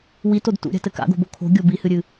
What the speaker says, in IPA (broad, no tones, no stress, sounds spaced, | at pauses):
w i t o d t ṵ ɾʲ a̤ t ɘ k a̰ ɡ o̤ b o kʰ o̤ ɡʲ o b i h ɨ ɾʲ ɨ